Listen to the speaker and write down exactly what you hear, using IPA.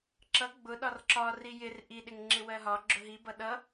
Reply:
ǁ ʌ ɡ͡b ʊ ɗ ɒ r ǁ ɒ r i j ɪ r ʔ i ɗ ɪ ŋ ŋ͡ǁ ɪ w ɜ ɦ ɒ ɡ͡ǁ ʊ ɦ i b ʌ ɗ ʌ

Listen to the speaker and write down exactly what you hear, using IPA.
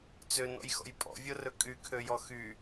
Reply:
t͡s ø n ɔ̰ j x ɔ̰ j pʼ ɔ̰ vʲ o r ɵ kʼ y kʰ ø j ɔ x y

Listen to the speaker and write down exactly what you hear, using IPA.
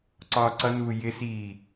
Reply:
ǀ ɒː ǀ ʌ n uː j ɪ s iː

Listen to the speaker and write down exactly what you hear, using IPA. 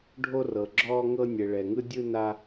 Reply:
ɖʱ o˧ r ɤ˩ ɡ͡ǁ ɔː˧ ŋ ɤ˧ nʲ ɛ˩ ɭ ɛ˩ ŋ ɯ˧ dʲ ɯ˧ n a˧

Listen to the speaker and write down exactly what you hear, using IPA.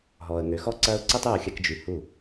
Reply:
ɦ ɔː˨ ə̯ ŋ ø˨ x ɔ˦ ǀ ɐː˦ ʊ̯ ǀ i˦ tˤ y˦˨ ʊ̯ xʲ ɐ˧ k d͡ʒ y˨ h u˦˨

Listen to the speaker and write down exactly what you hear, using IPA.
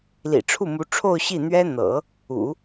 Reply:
l ḭ˨˩ ʈ͡ʂʰ u˥˩ m u˧˥ ʈ͡ʂʰ o˥˧ ʊ̯ ɕ i˥˩ n̪ ɥ ɛ˥ n̪ ɤ̰˨˩˦ | ṵ˨˩˦

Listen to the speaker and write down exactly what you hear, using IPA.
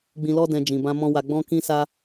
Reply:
ɡ͡b ĩ˧ l ɔ˦ d ɛ̃˧ d͡ʒ ĩ˨ b ã˧ m ɔ̃˦ w a˧ ɡ͡b ɔ̃˦ k ĩ˦ s a˦

